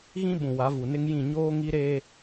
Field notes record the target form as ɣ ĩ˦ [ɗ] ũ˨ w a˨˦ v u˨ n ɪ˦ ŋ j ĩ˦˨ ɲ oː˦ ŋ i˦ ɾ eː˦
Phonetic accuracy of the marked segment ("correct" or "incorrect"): incorrect